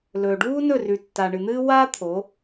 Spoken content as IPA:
l ɵː˨ ɖ uː˦ n ɵ˦˨ r ʉ˨ tː a˨ ɳ ɨ˨ n̪ ɨː˦ w a˧ t̪ʰ o˨˦

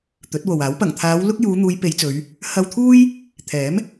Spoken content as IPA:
t̪ ɵ˨˥ t̚ w o˨ w aː˨˥ w p ɐ˨˩ ŋ t̪ʰ aː˨˧ w l ʊ˥ k̚ j uː˨˧ n̪ uː˨˧ j p e˨˧ j t͡s ɵ˨˧ ɥ | h ɐ˧ w t̪ʰ uː˥ j | t̪ʰ ɛː˨˥ m

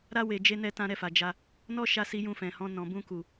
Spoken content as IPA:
ɾ a˦ w e˧ d͡ʒ e˦ n ɛ˦ t ã˦ ɾ ɛ˦˨ f a˨ d͡ʒ a˧ | n ɔ˦ ʃ a˧ s i˧ j ũ˧ f ɛ̃˨ h ɔ̃˧ n ɔ̃˨ b ũ˧ k u˨

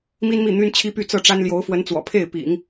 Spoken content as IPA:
m i˥ n m i˥˩ n̪ y˥ n t͡ɕʰ i˥ p y˥˧ t͡s ɤ˥˩ ʈ͡ʂ a˥ n l j o˧˥ ʊ̯ f w ə˧˥ n t͡s w ɔ̰˨˩ pʰ e˥˩ ɪ̯ p ḭ˨˩˦ ŋ

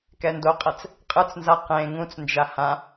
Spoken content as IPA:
k ɛ n d o qʼ ɛ t͡s | qʼ ɯ t͡s n z a q ẽ ŋ ũ t͡s n d͡ʒ a h ã

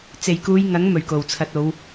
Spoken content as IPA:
t͡s e˨˩ j k uː˨˧ j ŋ ɐ˨˥ ŋ m ɵ˨˩ ɥ k o˨˩ w t͡sʰ ɐ˧ t̚ o˨˧ w

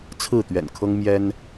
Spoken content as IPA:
t͡sʰ ɹ̩˥˨ t̪ ɥ ɛ̰˨˩ n kʰ ɤ˦ ŋ m j ɛ˦ n

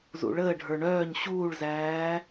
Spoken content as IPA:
z ṵ ɭ əː ɖʱ ə˞ ɳ œː ɲ ɕ uː ɭ z æː

